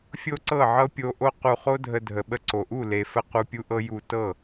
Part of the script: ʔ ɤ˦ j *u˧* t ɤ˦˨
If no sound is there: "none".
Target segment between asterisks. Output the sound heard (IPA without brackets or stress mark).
u˧